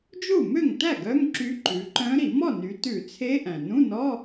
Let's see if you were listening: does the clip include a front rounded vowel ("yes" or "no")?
yes